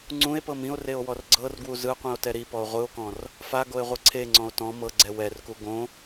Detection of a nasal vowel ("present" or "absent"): present